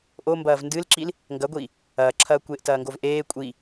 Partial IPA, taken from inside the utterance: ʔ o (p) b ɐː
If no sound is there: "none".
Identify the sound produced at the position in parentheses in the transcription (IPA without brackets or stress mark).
m